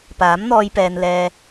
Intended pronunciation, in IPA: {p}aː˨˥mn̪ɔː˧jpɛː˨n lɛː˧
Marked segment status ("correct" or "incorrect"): correct